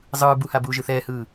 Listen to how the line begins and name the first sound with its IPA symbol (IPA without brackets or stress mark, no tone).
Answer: zˤ